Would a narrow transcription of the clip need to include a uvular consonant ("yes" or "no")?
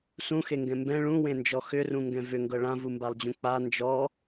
no